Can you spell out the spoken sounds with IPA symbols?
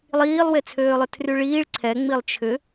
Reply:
lˠiːlˠwet͡sʰøːlˠʏ tʰryɭiːɭ ǀʰɛŋ͡milˠ t͡ʃʰʏ

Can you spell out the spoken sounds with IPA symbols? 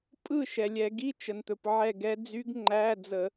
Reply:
pʼɯ˦˨ ʃɛ˩lʲɛ˧˩˧ ɡi˧˥˧t͡ʃə˩nt̪ɵ˩p ʕɛ˦˨ɡɛ˧˥ d͡zy˧˥ɡŋ͡ǃæ˧˥˧d͡zə˧˩˧

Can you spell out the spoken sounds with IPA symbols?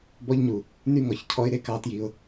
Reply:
bɔ˧ʎɲu˨ | ny˦ŋɔ˨ç cʰɔ˧ɪ̯ ɾe˦kɑ˦tji˧ʊ̯

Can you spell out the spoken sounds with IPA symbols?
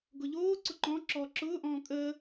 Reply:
ɡʊʎoːǀʊ ǃɔ̃ ǁɔːǁʊːʔɔ̃ː kʼəː

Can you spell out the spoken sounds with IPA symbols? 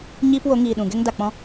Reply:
ɲiː˦pwo˨˦ŋiː˨ɗũ˨ ɡɛ˦ŋ da˨k͡pɔ̃˦

